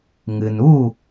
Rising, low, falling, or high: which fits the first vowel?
low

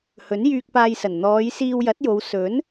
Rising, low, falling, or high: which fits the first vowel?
rising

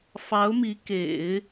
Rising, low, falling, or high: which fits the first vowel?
rising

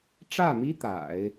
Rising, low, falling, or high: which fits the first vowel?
falling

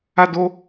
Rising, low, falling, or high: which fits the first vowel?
high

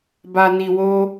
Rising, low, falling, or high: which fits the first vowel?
low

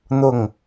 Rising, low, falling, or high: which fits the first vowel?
falling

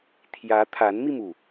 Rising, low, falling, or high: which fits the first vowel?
rising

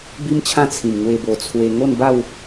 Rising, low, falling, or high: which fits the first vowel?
high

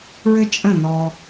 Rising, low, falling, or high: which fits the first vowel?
high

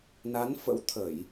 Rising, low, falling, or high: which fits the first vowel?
rising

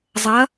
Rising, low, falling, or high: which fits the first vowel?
rising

